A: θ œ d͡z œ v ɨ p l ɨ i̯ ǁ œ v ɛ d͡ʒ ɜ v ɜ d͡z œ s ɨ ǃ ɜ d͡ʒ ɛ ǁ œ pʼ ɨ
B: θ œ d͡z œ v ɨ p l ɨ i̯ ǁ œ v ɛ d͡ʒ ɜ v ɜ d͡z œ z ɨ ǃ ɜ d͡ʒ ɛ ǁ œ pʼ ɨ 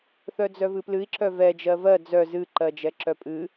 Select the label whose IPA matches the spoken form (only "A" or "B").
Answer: B